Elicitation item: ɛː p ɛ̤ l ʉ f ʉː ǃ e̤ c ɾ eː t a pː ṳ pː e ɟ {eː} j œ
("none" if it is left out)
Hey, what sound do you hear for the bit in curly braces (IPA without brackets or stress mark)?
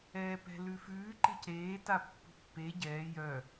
ɛː